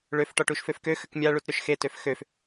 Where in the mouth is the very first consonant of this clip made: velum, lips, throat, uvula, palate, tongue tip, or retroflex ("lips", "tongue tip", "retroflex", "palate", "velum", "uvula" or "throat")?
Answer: retroflex